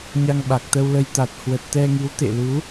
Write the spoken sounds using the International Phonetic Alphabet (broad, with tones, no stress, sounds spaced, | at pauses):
ɲ a˧ ŋ ɓ a˨˩ k̚ t̪ ə˧ w l ə˧ j t̪ a˨˩ t̚ h w ə˨˩ t̚ t̪ ɛ˧ ŋ i˨˦ w t̪ ḛ˧˨ l u˨˦